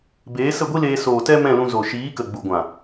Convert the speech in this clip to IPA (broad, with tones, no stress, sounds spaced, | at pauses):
b eː˨˦ s ə˦˨ ɡʷ i˦ l eː˧ s oː˨ t ɛ˦ m ɛ̃˦˨ l ũ˧ z o˨ ʃ iː˨˦ k ə˨ ɡ͡b u˨ ɡʷ ã˨